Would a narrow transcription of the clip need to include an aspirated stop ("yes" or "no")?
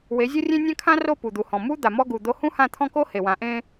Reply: yes